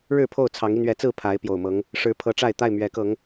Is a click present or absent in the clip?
absent